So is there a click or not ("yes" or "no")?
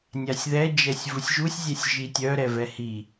no